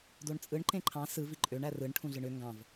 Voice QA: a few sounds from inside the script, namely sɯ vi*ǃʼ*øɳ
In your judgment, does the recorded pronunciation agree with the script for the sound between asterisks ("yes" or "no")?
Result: yes